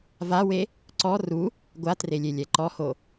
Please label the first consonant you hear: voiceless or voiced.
voiced